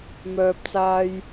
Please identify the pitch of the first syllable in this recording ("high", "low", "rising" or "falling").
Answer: low